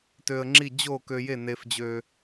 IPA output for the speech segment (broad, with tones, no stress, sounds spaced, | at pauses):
t ø˧ ə̯ ŋ͡ǁ i˥˩ d͡ʑ o˥˩ k ø˧ j e˥˩ n e˧ f d͡ʑ ø˧